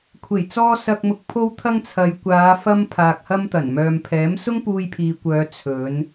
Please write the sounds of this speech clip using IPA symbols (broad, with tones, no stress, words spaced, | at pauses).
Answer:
kʷʰe˨˩jt͡sɔː˧ sɐ˨k̚mʊ˨k̚ pʰo˧wt̪ʰɐ˧ŋt͡sʰɐ˨jkʷaː˨˧ fɐ˧m pʰaː˨k̚hɐ˧mt̪ɐ˨˩n mœː˨mpʰɛː˨˥m sʊ˥ŋpuː˧jpʰiː˨kʷœː˨˧ t͡sʰɵ˨˧n